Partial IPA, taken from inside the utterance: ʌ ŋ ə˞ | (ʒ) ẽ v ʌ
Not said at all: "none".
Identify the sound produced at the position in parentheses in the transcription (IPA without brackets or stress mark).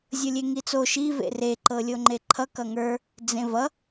d͡z